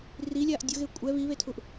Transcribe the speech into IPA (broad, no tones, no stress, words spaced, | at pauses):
rilʲaʔ dʲʊɣe kʷʼɛ βiβetʰuʔ